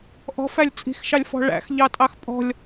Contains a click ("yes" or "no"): no